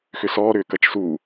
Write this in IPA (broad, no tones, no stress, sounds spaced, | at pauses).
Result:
x ʏ s ɔː ɾ ʏː k ɐ t͡ʃ s uː